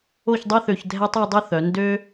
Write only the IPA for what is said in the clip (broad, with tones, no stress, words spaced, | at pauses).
o˥˧çdˤø˥θø˧ç dʱɛ˥tˤi˥˧dˤø˥θœ˩˧ ndø˧